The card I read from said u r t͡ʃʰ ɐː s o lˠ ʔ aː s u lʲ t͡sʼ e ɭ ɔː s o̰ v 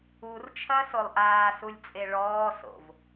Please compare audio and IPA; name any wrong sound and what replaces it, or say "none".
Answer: none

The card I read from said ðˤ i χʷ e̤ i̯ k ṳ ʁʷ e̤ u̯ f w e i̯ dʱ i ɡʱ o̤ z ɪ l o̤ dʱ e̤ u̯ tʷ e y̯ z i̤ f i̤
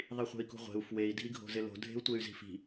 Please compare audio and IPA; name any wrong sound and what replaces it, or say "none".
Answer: none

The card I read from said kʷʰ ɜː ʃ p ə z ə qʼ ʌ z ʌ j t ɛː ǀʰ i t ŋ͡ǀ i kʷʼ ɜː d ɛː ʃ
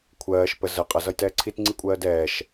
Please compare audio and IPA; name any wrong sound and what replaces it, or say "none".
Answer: none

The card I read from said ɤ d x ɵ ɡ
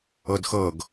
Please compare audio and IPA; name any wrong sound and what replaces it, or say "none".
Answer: ɵ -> ɤ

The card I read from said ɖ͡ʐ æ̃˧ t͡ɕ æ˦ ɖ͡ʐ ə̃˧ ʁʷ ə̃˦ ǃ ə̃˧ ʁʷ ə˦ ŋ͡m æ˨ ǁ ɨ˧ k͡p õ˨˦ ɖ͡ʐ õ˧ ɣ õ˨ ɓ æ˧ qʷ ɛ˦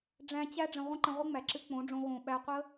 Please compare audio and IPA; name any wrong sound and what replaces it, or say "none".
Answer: ɛ˦ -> ə˦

